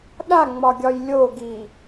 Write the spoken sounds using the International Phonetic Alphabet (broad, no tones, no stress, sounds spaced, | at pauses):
ɗ a ŋ͡m ɒ ɡʲ ɒ j lʲ o ɡ i